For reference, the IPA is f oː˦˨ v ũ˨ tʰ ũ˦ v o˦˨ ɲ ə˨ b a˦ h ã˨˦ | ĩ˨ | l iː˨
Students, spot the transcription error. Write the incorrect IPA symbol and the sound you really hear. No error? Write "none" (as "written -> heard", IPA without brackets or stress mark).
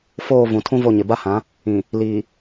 ə˨ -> ɪ˨